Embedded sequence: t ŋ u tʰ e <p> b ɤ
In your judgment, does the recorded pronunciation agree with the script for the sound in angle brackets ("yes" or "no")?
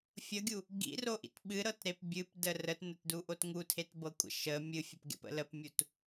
no